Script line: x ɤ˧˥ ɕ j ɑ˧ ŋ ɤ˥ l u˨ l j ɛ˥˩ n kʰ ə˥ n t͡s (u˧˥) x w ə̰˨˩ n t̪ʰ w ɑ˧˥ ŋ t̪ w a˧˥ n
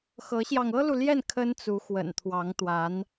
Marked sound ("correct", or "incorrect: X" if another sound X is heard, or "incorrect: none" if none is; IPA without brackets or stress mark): correct